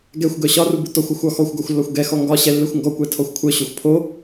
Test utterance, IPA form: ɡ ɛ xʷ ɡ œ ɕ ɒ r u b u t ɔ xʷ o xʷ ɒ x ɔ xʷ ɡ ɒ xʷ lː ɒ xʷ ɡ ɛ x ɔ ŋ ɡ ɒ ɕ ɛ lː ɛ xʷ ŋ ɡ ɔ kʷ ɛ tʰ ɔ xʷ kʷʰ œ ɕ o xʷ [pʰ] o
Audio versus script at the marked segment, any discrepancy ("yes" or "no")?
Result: no